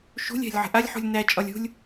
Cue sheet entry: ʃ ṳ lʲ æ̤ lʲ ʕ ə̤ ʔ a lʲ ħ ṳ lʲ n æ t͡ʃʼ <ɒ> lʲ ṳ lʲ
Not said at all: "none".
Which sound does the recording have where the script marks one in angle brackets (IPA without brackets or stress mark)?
ɒ